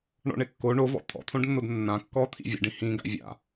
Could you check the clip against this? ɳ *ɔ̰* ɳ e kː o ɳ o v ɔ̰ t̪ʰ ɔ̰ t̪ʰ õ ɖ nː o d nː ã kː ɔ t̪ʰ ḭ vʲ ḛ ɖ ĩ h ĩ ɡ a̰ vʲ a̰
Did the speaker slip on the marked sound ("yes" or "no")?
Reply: no